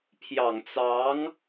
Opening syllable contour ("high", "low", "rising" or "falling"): low